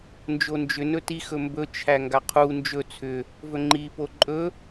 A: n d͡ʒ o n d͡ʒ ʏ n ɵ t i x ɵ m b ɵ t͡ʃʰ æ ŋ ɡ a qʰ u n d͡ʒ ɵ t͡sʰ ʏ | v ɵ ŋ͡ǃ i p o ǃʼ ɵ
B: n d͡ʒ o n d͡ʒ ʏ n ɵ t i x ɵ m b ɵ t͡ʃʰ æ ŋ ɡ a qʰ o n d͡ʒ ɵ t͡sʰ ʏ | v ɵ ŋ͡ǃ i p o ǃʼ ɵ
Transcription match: A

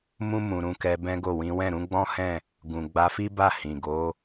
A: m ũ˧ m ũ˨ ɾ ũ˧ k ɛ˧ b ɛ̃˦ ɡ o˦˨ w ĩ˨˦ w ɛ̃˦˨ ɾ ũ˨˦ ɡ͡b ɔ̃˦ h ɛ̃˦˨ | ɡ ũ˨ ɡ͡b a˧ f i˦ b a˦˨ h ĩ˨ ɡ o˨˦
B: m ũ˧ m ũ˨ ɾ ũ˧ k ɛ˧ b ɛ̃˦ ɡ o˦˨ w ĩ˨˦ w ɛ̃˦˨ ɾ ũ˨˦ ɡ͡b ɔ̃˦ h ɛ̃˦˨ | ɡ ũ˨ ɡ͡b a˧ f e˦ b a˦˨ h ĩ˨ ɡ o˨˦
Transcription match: A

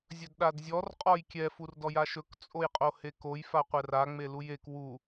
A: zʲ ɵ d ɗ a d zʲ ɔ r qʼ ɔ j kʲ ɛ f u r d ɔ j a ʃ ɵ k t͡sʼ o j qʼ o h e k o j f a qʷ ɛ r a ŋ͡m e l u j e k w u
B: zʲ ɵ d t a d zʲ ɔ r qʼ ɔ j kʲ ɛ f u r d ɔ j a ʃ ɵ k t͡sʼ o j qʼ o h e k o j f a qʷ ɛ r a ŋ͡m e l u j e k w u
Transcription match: A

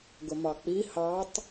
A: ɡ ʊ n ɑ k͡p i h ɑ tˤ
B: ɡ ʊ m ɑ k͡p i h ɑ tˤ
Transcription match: B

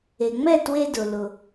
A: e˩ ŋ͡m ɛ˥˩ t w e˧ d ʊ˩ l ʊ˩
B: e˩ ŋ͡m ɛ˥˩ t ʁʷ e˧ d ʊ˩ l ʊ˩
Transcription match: A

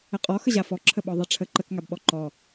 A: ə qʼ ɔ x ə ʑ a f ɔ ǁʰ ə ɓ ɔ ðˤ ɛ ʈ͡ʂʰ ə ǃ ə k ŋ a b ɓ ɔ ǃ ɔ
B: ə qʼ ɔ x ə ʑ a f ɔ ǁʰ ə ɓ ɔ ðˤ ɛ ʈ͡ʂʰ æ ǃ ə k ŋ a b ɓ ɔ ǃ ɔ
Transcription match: A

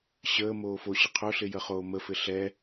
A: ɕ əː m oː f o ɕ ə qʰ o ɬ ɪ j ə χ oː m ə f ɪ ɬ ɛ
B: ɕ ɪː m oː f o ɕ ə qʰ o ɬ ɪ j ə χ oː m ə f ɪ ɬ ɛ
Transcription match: A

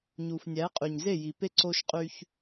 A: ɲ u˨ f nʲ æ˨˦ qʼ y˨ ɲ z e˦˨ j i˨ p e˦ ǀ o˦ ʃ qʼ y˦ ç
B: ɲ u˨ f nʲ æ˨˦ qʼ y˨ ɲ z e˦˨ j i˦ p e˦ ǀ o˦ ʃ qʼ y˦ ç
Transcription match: A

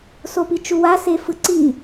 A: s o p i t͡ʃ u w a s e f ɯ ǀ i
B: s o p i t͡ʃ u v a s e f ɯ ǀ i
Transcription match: A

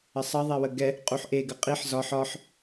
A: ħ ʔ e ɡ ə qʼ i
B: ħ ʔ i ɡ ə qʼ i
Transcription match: A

